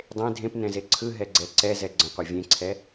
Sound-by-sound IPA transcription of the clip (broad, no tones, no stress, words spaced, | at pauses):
dˤẽ dʱẽp nɛ̃zeǀʰɯ ɦɛɡ͡ǀɛǀɛ zɛɡ͡ǀə̃qʷɛ vʲẽǀʰɛ